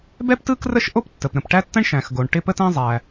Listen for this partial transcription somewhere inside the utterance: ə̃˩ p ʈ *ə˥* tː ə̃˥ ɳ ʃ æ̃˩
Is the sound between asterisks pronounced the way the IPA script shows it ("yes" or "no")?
no